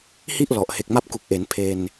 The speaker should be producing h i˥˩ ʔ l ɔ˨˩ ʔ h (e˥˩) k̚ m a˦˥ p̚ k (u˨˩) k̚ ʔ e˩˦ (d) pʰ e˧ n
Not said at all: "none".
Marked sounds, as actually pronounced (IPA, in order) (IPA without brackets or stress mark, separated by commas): e˨˩, u˨˩, n